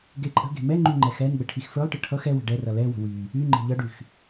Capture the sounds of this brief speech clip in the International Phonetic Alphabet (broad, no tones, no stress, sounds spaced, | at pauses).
ɡ e ǃʼ ə̤ ɡ e̤ m ɛ ŋ͡ǃ y ŋ͡ǃ ɛ x ɛ n ɡ͡b ə ʈʰ i x f ə˞ lˠ ʈ ə ʈʰ ʌ x ɛ w ə̤ ɖ ɛ r ʌ l ɛ w ə̤ w y | y ŋ͡ǃ e̤ ʎ ʌ ɖ y x